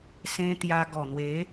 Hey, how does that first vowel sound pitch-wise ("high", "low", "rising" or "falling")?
high